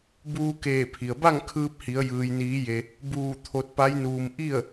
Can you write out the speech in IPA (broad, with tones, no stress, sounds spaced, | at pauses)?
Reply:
b uː˧ k eː˧˩ pʰ i˩ ə̯ b a˥˨ ŋ kʰ ɯː˧ p̚ h i˩˧ ə̯ j ɯː˩ j n iː˩˧ j e˩ | b uː˧˩ t̪ʰ o˧ t̚ p a˧˥ j n uː˧ m ʔ i˥˨ ə̯